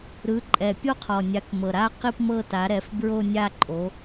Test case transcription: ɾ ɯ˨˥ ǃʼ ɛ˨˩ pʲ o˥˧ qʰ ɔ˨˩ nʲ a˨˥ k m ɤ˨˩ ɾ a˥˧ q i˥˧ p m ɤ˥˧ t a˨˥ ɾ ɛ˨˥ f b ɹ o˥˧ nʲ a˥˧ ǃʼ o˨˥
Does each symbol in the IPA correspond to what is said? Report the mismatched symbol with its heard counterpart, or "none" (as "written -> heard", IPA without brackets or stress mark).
none